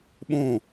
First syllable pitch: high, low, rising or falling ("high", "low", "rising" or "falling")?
falling